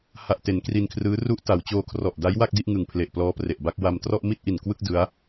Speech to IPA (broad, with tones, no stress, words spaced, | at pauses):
ha˨˩ʔte˩˦n kri˧nkʰrɯː˦˥ ru˦˥ʔta˩˦w t͡ɕoː˧kʰrɔ˨˩ʔda˦˥j wa˥˩k̚di˥˩ʔŋɯ˨˩ŋ pʰle˨˩ʔplɔː˦˥ pre˨˩ʔba˥˩k̚ wa˧mtrɔ˥˩ʔ mi˥˩t̚ʔi˨˩n kwɯ˥˩k̚ dɯ˦˥a̯